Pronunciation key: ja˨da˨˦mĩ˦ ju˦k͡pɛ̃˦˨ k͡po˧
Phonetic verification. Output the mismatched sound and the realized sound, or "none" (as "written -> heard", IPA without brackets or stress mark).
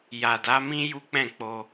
none